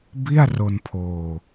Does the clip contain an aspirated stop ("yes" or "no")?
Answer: yes